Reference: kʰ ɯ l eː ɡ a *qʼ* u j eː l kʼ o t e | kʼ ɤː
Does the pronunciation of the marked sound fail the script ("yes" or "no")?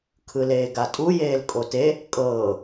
yes